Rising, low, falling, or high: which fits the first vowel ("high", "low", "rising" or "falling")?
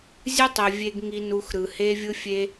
high